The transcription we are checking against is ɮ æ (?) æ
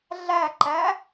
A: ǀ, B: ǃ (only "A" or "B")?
B